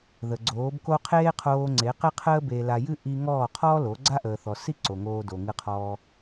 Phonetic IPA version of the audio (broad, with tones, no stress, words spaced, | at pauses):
ðə˨ɡ͡ǀoː˨˦bko˦ qʰeː˦qʰoː˧ŋ͡ǀe˨˦qe˦ qʰəː˦be˧la˧jɨ˦ ʔi˧ŋɔː˦˨qʰɔː˦lo˨˦ ɡ͡ǀa˦ʔəː˨θɔ˨si˦ ǀo˨ŋoː˧ do˨ŋɨ˧qʰɔː˧